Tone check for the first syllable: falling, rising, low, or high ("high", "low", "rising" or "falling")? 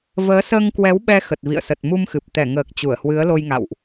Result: rising